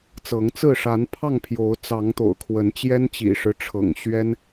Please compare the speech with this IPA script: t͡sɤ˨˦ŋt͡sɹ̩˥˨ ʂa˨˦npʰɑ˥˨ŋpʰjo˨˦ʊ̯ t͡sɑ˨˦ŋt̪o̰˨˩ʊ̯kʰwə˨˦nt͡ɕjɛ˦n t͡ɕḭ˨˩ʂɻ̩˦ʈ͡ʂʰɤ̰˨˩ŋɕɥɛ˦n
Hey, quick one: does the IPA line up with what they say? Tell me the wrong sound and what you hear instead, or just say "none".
none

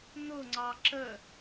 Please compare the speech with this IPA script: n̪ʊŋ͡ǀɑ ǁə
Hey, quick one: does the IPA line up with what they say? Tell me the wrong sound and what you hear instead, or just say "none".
none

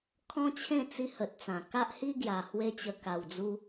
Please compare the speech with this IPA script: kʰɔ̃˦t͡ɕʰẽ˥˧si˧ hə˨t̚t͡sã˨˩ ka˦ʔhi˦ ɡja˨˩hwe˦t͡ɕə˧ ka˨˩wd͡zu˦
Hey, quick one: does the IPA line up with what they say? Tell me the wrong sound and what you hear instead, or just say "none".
s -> t͡s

